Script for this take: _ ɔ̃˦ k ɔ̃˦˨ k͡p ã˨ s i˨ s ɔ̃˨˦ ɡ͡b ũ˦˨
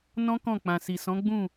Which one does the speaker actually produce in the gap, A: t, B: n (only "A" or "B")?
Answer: B